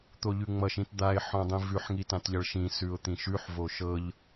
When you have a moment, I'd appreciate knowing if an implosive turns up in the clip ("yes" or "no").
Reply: no